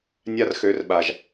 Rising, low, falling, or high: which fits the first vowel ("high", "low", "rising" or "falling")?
high